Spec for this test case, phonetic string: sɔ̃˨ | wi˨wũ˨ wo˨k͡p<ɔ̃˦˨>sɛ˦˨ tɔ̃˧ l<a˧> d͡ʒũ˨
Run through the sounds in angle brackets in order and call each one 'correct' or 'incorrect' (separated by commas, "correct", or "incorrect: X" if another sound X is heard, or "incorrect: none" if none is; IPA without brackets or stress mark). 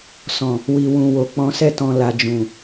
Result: incorrect: ɔ̃˨˦, incorrect: a˨